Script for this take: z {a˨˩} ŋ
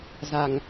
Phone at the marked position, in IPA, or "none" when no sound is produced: a˨˩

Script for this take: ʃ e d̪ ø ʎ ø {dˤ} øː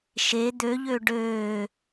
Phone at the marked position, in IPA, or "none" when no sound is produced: ɖ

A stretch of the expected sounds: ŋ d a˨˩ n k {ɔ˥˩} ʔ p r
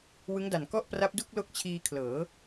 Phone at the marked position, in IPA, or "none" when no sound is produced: ɔ˥˩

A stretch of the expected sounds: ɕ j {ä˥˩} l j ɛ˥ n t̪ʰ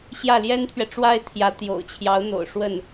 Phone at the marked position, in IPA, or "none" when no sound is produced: ä˥˩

